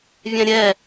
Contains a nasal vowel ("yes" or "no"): yes